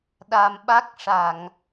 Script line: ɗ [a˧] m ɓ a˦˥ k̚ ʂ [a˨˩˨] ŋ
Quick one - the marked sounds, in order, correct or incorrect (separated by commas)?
correct, correct